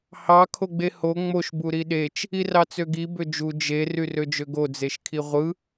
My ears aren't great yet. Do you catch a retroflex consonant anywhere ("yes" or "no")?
no